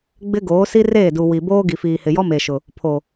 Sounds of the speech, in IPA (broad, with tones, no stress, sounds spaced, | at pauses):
ɡ͡b ɪ˦ ɡ oː˨˦ s i˦ r eː˦˨ d u˨ w i˨ b oː˦ ɡ i˨ f iː˨ h ɪ˨ j ɔ˦ m e˨ ʃ ʊ˨ | pʰ o˨